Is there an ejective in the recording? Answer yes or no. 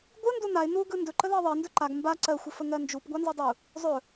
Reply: no